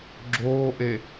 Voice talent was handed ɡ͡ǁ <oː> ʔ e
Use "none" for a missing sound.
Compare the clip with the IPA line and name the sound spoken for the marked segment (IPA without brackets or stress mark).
oː